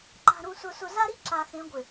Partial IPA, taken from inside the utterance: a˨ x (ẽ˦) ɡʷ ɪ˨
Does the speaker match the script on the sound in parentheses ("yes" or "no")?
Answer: no